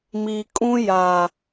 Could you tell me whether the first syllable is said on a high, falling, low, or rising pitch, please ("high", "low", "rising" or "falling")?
low